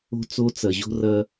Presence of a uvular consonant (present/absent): absent